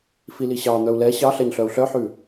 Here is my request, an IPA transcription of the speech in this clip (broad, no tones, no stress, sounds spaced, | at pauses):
f i l i ɕ ɑ n̪ œ u̯ l ɛ ɕ ɑ ɬ ɛ ɲ ɬ œ u̯ ɬ œ ħ ʉ